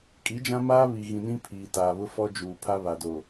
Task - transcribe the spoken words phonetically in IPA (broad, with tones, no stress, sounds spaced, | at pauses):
kʼ i˨˦ d͡ʒ ã˦ m aː˦ β i˨ ɣ ĩ˨ n ĩ˦ pʰ iː˨ t aː˨ β ʊ˦ f ɔ˦ d͡ʒ uː˨ pʰ a˦ β a˨ d oː˨